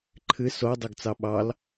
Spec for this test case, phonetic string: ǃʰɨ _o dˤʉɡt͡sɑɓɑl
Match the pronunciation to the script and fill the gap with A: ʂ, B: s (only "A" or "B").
B